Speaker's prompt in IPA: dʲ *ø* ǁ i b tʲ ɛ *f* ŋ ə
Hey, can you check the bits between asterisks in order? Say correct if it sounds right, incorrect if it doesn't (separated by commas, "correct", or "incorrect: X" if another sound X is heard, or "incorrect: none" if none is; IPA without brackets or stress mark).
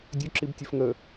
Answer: correct, correct